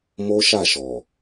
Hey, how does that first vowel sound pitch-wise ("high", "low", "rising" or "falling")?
high